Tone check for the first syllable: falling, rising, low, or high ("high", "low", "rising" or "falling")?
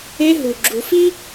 high